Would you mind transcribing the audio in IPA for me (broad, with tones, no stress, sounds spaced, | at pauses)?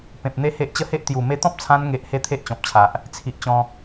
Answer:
p ẽ˨ p̚ n̪ e˦ h e˦ ʔ t͡ɕ ə˥˧ h e˦ ʔ t̪ j u˨˩ m e˧ t̪ ɔ̃˦ p̚ t͡sʰ ã˧ n ŋ e˨ ʔ h e˥˧ t̪ʰ e˦ ʔ t͡ɕ ɔ̃˨ p̚ t͡ɕʰ a˨ ʔ | t͡sʰ i˨ ʔ t͡ɕ ɔ̃˧